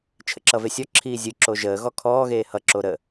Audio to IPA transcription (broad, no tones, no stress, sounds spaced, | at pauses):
t͡ʃʰ ə̰ ǁ ʌ v e sʲ ɔ ǁʰ iː zʲ ɯ ǁ o ʒ əː ɣ ɔ kʰ ɔː ɣ eː h ʌ ǁ o ɾ ə